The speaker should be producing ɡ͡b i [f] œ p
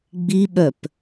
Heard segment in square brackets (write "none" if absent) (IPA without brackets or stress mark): ɓ